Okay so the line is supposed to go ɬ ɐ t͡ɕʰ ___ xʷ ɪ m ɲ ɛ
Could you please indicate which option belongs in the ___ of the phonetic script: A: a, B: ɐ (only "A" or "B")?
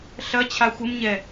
A